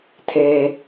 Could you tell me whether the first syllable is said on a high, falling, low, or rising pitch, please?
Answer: high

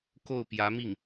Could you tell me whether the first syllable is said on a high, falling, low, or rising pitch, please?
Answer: falling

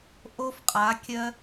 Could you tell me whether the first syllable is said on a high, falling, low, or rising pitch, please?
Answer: high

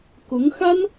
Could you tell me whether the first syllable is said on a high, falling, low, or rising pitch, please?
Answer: rising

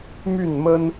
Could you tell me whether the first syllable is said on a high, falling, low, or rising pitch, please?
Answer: falling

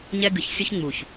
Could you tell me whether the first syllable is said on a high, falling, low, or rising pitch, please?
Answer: high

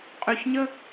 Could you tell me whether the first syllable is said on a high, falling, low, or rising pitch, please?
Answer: high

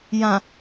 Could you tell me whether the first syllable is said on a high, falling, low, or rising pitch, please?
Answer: low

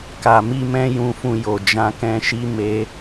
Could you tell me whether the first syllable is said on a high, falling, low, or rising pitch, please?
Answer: low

